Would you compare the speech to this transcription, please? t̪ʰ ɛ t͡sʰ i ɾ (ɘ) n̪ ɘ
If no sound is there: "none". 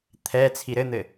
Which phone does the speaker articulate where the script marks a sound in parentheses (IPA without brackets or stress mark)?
ɘ